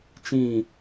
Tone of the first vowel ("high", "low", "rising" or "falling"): falling